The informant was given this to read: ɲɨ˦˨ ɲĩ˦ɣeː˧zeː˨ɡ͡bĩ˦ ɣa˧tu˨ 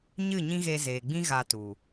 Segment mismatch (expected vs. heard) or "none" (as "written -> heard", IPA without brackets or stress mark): none